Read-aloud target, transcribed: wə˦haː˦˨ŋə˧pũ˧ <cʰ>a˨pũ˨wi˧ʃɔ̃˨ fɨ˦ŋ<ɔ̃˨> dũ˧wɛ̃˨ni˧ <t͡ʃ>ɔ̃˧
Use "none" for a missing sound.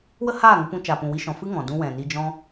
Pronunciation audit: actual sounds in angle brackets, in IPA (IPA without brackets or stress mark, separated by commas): t͡ʃ, ɔ̃˨, d͡ʒ